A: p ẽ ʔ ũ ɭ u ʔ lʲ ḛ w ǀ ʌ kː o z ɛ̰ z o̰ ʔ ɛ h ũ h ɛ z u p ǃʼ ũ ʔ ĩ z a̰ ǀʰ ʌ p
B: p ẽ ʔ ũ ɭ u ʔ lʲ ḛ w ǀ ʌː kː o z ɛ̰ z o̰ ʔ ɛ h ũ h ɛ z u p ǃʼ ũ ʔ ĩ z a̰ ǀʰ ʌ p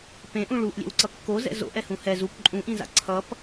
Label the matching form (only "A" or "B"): A